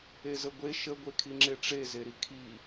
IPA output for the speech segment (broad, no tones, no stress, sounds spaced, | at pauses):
e z ə ɡʷ e ʃ ə ɡʷ e kʰ i ŋ͡ǁ e ʈ͡ʂ e z e ɾ i kʰ i